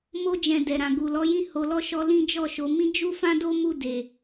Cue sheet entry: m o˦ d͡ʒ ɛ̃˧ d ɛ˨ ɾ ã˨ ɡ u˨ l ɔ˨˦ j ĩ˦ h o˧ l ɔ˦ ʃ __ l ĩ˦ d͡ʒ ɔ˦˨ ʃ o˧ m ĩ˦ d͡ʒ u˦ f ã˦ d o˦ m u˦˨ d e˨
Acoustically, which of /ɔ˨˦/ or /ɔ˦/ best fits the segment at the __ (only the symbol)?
ɔ˦